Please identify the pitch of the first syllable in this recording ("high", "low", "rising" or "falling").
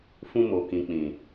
high